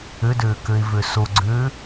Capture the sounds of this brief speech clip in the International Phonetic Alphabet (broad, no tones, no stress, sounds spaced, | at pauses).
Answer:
ʉ d ʉː k ʉ i̯ v ʉ s u ɡ͡ǀ ʉː